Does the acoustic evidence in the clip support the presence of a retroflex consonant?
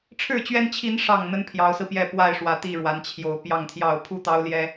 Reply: yes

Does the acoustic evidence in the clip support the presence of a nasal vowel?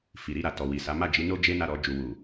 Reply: no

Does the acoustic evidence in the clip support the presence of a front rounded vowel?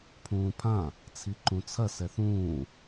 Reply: no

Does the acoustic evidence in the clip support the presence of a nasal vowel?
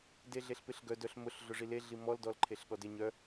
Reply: no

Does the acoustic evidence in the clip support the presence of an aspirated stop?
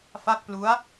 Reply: no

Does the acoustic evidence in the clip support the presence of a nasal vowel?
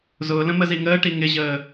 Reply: yes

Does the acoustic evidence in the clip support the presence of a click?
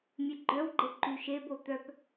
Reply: yes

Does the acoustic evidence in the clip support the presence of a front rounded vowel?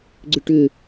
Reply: yes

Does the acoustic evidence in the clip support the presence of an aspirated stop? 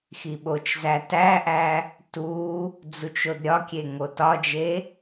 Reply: no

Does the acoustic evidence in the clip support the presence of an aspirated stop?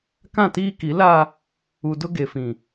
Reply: no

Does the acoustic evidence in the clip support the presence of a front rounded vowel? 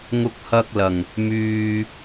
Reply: yes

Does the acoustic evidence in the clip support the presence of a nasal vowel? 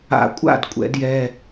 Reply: no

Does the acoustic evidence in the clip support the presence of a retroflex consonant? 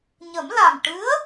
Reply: yes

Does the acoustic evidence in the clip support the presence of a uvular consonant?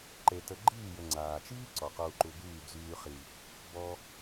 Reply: yes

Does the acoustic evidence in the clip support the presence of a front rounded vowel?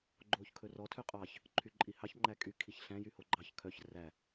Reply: yes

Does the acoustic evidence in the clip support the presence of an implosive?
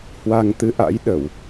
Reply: yes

